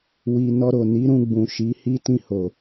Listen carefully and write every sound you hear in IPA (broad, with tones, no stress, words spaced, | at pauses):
wi˨ nɔ˧ɾo˨ni˨˦ ɾũ˧ɡ͡bũ˨ ʃi˨˦hi˦ tĩ˧ho˨